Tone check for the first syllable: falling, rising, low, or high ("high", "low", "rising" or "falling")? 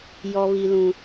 high